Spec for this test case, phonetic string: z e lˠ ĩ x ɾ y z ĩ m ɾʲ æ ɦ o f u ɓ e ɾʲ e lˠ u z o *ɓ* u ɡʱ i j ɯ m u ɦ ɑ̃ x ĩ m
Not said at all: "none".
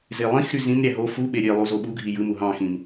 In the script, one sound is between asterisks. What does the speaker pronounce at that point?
ɓ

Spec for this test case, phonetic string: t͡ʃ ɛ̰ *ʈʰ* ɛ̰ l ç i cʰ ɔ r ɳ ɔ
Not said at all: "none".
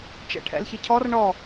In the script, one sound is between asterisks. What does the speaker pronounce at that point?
ʈʰ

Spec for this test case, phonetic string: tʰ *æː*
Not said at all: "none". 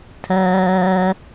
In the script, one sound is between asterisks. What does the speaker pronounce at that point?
ɜː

